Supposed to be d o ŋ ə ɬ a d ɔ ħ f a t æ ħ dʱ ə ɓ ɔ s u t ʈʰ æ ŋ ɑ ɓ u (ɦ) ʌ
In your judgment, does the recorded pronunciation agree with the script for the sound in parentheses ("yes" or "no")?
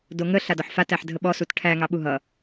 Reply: yes